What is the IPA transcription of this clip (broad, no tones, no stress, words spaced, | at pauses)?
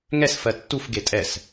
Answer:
ŋɛs fɜtːuf ɡetʼɛs